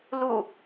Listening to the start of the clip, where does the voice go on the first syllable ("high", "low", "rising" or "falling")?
falling